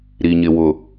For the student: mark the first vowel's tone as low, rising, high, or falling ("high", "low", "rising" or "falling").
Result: low